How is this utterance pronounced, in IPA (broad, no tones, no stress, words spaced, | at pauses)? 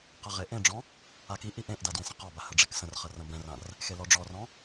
qɐʁeʔẽɖ͡ʐɔ̃ | akiʔi ʔẽʔda dwẽsə̃qɔba həɖ͡ʐeksə̃rχɐ rɐ̃bɛ̃rãr | xelɔɖ͡ʐɔrɔ̃